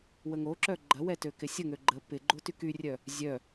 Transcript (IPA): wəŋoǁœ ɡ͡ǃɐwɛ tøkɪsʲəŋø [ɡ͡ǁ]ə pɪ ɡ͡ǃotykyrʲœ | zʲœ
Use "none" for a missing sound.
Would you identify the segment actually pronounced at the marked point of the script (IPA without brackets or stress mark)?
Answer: ɡ͡ǃ